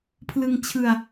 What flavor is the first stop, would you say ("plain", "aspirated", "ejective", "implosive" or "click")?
aspirated